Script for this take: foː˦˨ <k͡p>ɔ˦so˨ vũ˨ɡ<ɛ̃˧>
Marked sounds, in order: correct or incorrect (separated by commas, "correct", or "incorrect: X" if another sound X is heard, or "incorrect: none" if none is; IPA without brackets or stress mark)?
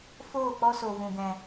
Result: correct, incorrect: ɛ̃˨